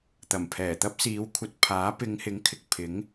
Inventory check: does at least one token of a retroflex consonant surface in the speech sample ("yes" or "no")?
no